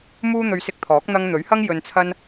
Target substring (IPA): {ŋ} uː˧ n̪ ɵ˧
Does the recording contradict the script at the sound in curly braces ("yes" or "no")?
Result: yes